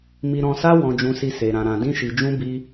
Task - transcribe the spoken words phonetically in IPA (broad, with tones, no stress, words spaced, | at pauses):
mi˧ɾɔ̃˧sa˦ wɔ̃˦ d͡ʒũ˧si˧ se˧ ɾã˧ ɾã˧ dĩ˦ʃi˧d͡ʒũ˦ bi˦